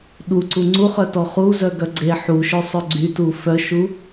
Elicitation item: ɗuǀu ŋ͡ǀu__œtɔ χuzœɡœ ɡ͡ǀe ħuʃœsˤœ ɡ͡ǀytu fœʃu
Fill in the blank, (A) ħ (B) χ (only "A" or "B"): B